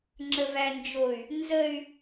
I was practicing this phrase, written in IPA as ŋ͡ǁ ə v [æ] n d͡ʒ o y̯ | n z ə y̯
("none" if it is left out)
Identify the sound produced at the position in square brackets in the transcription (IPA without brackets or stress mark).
æ